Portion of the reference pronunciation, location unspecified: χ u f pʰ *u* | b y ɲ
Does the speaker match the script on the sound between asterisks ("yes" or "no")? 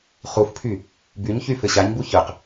no